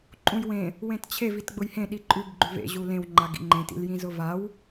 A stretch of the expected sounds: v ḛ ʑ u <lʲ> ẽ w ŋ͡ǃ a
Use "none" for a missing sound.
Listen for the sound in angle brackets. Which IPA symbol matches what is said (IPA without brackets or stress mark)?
l